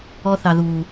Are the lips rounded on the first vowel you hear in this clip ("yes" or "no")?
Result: yes